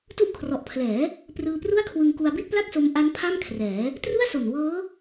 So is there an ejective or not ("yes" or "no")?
no